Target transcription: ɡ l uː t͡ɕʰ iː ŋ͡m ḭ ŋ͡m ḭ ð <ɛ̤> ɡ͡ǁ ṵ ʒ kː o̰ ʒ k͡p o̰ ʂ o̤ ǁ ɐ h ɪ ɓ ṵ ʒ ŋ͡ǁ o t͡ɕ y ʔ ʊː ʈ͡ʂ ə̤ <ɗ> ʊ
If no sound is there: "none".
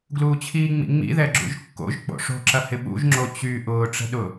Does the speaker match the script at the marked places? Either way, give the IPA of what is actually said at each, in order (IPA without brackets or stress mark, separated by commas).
ɛ, ɗ